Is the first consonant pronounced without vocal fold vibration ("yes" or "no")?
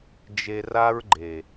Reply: no